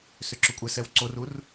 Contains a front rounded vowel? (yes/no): yes